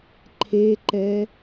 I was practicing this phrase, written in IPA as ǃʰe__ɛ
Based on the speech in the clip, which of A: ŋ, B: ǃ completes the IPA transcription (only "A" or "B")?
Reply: B